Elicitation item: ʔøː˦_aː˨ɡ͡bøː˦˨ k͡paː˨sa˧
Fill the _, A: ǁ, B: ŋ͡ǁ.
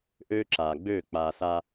A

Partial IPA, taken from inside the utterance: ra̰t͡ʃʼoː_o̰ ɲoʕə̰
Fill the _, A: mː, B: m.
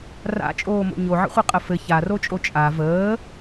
B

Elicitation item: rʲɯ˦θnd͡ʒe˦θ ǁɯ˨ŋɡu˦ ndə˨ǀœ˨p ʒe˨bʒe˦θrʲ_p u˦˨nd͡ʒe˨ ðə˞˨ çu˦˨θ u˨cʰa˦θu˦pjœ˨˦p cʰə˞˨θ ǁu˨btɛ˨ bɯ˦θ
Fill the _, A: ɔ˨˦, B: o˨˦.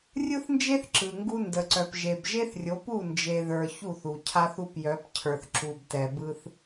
B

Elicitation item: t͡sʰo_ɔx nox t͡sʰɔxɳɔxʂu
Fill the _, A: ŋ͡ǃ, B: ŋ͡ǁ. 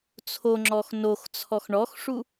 B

